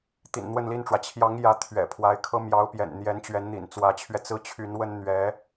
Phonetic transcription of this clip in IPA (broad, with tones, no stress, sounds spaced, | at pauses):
t̪ ḭ˨˩ n n̪ w ə˥˧ n l i˥˩ n ʈ͡ʂ w ä˩ t͡ɕʰ j ɑ˧˥ ŋ j ä˧˥ t̪ʰ ɥ ɛ̰˨˩ pʰ w a˧˥ ɪ̯ kʰ ɤ˥ m j ɑ˧˥ ʊ̯ p j ɛ̰˨˩ n n̪ j ɛ˧˥ n t͡ɕ ɥ ɛ˧˥ n n̪ ḭ˨˩ n t͡s w ä˧˥ t͡ɕʰ ɥ ɛ˧ t͡s ɹ̩˥˩ t͡ɕʰ y˧˥ n w ə˥ n n̪ ɥ ɛ˧˥